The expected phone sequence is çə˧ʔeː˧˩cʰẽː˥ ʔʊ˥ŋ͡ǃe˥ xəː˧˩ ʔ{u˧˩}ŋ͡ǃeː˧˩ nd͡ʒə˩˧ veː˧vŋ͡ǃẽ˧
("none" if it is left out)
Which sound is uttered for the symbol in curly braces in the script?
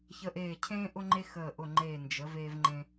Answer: ʊ˧˩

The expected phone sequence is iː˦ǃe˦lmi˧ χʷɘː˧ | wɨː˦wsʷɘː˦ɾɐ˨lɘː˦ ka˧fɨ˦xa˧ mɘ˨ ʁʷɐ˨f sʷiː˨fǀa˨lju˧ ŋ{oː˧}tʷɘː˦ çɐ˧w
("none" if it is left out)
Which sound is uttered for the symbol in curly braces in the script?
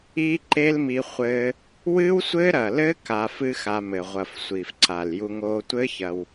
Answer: oː˧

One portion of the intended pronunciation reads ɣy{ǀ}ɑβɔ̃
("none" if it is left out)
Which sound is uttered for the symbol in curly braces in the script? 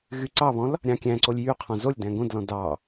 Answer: ǀ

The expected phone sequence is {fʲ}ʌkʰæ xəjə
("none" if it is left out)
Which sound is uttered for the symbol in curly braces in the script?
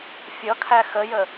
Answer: fʲ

